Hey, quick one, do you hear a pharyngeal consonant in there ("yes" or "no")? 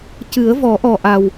no